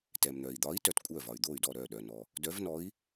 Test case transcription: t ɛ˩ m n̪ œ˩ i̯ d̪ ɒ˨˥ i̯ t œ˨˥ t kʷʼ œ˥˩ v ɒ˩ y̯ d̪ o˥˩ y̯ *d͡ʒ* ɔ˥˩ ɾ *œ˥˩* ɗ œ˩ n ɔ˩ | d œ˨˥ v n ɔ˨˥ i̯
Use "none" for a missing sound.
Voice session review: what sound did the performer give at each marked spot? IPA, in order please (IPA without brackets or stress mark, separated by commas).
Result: d, œ˥˩